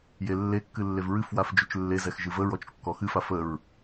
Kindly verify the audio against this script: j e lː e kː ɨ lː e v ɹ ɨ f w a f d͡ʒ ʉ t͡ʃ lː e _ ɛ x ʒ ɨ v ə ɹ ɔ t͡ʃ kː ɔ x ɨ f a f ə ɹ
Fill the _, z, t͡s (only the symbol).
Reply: z